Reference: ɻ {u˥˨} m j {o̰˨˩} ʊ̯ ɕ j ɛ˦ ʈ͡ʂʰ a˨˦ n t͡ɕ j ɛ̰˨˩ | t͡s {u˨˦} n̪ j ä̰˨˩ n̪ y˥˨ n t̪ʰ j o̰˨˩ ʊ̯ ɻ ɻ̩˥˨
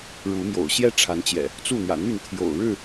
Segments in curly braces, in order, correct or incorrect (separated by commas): incorrect, correct, incorrect